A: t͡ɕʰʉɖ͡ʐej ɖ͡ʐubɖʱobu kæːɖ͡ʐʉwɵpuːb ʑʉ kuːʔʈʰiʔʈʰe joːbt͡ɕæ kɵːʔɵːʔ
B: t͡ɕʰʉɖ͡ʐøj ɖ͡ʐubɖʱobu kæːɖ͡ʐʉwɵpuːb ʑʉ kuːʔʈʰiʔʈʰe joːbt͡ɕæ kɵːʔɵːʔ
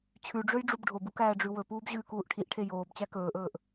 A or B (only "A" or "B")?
B